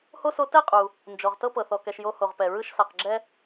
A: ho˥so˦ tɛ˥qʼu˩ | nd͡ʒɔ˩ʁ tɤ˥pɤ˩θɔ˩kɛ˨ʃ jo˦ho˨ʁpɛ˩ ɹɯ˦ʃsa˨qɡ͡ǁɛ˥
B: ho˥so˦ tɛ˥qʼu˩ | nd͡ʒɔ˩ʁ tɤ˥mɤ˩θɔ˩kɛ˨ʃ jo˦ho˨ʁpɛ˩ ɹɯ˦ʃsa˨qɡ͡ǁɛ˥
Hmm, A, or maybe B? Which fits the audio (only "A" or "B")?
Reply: A